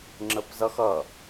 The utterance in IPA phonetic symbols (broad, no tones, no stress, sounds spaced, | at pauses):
ŋ͡ǁ ə p z ʌ x ʌ